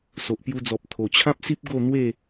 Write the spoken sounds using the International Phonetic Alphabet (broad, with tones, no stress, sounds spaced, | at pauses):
s o˨ ʔ p j u˧ d͡z ɔ˨ p̚ t̪ʰ o˨˩ t͡ɕʰ ã˦ p̚ s i˦ p̚ ɡ o˥˧ n̪ w e˥˧